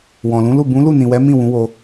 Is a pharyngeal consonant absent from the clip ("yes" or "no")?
yes